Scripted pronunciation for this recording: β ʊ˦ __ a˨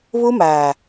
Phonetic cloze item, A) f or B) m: B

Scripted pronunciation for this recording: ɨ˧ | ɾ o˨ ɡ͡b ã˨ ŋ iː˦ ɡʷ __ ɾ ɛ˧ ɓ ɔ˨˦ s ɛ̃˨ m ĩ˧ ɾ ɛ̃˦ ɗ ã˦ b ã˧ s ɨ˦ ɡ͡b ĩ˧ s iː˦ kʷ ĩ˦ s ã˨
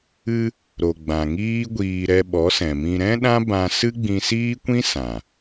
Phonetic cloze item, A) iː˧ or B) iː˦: A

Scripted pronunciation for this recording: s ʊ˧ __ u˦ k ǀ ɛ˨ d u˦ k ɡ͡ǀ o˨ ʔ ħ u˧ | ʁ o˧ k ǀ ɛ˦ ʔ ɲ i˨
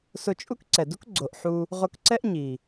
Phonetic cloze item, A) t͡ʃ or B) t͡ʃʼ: B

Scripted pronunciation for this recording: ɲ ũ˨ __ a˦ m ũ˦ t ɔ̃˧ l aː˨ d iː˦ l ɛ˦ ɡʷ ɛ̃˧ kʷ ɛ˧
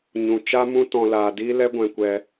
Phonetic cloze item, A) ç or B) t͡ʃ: B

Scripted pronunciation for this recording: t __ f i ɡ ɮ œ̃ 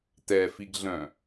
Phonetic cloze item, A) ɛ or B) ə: A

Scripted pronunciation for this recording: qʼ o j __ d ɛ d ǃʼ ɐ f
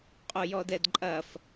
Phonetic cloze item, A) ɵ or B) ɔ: B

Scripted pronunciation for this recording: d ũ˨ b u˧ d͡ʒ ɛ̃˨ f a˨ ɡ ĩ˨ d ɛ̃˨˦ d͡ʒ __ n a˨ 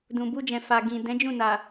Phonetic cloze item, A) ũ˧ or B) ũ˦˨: B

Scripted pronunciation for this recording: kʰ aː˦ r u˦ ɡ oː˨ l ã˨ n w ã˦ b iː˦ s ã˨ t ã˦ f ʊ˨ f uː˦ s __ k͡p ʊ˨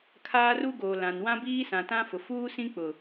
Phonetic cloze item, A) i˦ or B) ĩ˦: B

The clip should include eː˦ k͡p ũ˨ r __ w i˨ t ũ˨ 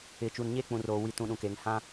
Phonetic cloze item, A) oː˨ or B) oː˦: A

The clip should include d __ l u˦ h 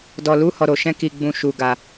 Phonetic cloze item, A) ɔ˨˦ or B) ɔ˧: B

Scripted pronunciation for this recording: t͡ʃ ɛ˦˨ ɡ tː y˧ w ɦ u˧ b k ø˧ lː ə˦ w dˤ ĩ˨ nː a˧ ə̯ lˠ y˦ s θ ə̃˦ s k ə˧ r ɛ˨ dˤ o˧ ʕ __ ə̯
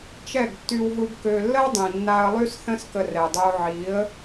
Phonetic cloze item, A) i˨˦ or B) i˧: A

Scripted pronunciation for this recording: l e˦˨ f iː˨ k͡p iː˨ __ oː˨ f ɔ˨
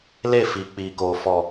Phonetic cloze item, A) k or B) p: A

